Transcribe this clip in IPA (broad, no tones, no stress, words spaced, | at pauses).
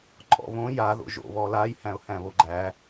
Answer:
ǃʼɔ̰βõ ja ðo̰ʒo̰ βɔlaj hæ̃ʊ̯hæ̃βoɡ͡ǃæ